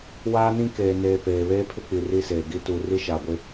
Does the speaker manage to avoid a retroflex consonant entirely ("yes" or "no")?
yes